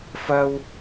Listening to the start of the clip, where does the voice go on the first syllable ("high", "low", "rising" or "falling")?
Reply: high